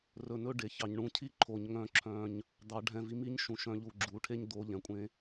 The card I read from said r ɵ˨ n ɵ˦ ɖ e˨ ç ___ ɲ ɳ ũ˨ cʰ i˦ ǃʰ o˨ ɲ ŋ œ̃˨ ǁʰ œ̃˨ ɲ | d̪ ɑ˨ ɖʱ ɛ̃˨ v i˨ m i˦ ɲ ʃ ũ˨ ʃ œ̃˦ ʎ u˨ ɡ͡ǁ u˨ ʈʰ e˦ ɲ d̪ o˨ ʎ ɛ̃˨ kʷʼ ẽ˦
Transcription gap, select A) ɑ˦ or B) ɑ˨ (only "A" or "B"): B